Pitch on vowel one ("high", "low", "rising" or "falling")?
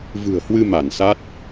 low